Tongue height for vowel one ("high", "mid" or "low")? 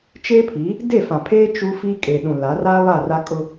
mid